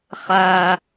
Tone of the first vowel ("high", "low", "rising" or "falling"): low